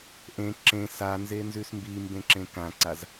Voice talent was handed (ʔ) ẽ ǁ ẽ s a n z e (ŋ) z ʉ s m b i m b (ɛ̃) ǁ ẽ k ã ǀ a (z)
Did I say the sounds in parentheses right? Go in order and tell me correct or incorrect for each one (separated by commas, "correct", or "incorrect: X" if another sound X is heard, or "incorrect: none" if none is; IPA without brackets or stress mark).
correct, incorrect: n, incorrect: ẽ, correct